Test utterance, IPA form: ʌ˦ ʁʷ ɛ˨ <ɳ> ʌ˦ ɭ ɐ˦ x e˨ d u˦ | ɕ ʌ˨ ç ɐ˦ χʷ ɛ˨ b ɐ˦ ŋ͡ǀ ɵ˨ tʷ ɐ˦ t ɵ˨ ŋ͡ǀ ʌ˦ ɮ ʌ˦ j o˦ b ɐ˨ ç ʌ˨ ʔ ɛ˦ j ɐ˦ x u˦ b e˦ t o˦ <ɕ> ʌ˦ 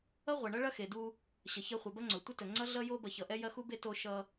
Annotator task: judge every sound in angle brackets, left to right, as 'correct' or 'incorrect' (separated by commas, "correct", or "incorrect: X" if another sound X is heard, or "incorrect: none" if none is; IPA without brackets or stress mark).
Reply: correct, incorrect: ʃ